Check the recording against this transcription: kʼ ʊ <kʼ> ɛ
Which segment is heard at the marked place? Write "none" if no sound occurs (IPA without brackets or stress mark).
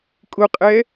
qʼ